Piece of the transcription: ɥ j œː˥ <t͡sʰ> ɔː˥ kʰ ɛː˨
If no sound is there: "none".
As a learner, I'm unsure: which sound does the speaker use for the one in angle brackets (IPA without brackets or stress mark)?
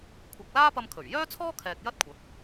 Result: t͡sʰ